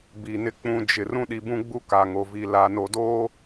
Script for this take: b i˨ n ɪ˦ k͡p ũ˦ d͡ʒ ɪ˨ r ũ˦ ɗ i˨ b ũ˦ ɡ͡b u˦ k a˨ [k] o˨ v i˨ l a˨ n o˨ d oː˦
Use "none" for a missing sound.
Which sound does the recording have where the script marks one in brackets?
ŋ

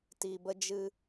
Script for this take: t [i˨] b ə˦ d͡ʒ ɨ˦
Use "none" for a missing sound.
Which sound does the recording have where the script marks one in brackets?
i˨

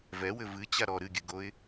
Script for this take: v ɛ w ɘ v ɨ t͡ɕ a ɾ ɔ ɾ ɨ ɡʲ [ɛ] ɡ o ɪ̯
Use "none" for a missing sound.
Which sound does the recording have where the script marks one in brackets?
ɨ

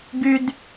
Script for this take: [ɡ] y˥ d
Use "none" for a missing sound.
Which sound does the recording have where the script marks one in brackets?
ɡ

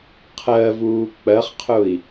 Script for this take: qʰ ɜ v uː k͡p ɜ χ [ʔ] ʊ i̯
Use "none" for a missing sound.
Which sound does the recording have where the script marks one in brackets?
qʰ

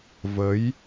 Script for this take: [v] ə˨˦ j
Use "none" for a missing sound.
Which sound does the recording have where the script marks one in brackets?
v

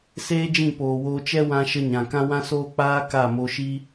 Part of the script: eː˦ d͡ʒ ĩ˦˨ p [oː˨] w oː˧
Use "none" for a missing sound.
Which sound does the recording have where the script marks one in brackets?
oː˨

